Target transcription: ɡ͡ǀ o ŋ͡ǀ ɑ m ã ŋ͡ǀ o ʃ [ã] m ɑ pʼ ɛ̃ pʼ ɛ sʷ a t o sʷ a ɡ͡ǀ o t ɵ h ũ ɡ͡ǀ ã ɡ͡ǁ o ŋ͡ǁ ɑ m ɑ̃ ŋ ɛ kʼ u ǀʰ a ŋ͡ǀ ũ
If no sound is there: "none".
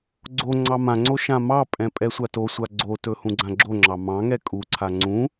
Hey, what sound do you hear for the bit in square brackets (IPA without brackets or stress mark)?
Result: ã